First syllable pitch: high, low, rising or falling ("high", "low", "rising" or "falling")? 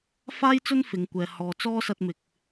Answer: high